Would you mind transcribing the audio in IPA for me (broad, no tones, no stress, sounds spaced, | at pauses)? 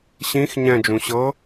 ɕ ĩ x ɲ ɛ̃ d͡ʒ ũ ɕ ɤ